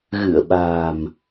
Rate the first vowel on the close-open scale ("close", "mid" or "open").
close